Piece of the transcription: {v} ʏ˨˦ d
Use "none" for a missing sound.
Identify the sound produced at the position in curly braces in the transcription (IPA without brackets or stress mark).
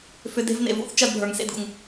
f